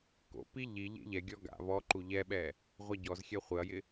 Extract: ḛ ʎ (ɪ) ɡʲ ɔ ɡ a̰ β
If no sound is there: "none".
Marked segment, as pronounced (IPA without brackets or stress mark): ɛ